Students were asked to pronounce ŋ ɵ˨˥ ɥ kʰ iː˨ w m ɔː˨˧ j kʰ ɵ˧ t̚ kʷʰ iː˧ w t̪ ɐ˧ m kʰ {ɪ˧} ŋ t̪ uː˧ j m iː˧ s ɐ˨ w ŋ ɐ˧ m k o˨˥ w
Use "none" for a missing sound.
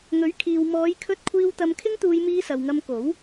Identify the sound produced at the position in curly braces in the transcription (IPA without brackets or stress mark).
ɪ˥